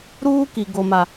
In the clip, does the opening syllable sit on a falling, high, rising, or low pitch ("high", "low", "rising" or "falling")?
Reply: high